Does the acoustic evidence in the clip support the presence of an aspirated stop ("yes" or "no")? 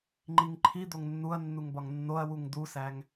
yes